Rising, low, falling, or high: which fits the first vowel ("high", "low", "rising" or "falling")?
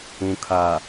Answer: low